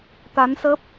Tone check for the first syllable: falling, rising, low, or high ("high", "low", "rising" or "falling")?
rising